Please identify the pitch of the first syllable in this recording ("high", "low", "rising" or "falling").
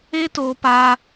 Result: high